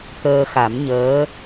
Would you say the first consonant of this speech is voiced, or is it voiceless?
voiceless